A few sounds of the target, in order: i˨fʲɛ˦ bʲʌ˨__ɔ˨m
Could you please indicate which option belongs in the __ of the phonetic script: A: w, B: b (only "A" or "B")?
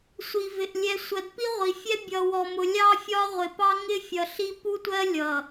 A